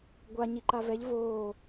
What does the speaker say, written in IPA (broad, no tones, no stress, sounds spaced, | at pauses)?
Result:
ɡʷ a ɲ i ǃ a v ɛ ʎ v oː